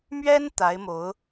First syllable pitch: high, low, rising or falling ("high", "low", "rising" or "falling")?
high